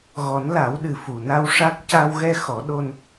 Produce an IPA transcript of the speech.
ɣ ɔ˨˩˦ n l a˨˩˦ w ɗ ɨ˨˩ f u˨˩ n a˧ w ʂ a˦˥ k̚ c a˧ w ɣ ɛ˧ x ɔ˨˩˦ ɗ o˧ n

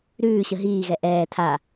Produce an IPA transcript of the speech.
ɾ ʉː ɕ ə ɦ iː ɣ ɛ ʔ ɛː tʰ a

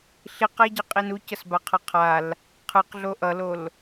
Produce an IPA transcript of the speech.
ɬ i q a ɟ ʌ qʼ i n u c ʌ s b a qʰ ʌ qʰ a l | qʰ ɯ q ɮ o ʔ ʌ l o l

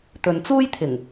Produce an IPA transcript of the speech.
t̪ ɵ˨ n t͡s uː˥ j t̪ʰ ɪ˨˩ ŋ

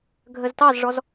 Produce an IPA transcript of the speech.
ɡʱ ə z t ɑ z ʐ ɔ z

